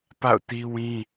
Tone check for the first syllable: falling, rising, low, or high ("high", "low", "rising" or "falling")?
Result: falling